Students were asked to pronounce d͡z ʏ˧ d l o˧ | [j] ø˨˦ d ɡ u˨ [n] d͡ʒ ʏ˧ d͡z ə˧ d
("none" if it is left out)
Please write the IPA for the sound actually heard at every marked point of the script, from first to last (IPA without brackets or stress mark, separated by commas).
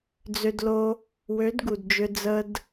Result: w, d